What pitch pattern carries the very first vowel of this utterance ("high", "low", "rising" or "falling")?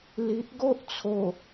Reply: low